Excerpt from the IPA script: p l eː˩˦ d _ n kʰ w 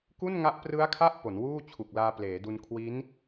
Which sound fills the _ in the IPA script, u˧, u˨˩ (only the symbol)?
u˧